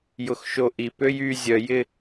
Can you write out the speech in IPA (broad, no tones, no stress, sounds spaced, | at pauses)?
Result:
j ʊ x ʃ o ʔ i p ø j y zʲ œ j ɪ